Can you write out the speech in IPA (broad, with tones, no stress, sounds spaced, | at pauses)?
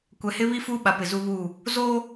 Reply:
kʷ ɛ˨ h ɪ˦ β i˦ f uː˦ ɓ a˨ p ɪ˨ z u˦ β u˦˨ | z oː˦